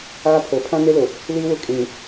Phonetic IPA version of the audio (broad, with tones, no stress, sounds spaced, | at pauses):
aː˦ pʰ o˨ pʰ ã˦ n e˦ l ʊ˨ | l iː˦ w ʊ˦˨ kʼ ĩ˨ ŋ